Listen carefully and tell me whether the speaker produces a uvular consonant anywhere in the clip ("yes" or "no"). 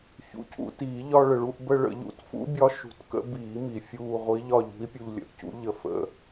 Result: yes